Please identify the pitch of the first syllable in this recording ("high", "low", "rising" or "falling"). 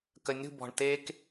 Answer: rising